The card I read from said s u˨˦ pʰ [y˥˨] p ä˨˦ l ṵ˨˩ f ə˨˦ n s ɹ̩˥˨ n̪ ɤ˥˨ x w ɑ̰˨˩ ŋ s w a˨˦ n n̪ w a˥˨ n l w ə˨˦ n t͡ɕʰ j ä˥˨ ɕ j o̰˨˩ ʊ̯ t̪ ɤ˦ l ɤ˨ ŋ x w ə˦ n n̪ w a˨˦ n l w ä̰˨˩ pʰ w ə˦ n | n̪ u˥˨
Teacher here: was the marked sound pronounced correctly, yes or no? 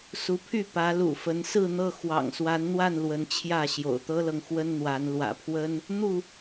yes